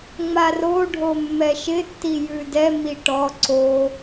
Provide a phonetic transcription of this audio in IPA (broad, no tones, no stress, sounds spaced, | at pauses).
ŋ͡m a r o ɖʱ o mː ɛ ʃ ɪ tː i j ʉ d ɛ m i ʈ ɔ ǀ o